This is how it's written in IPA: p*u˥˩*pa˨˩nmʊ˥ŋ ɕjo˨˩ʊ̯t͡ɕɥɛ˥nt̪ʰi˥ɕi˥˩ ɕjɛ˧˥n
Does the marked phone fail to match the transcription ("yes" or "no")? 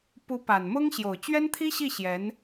yes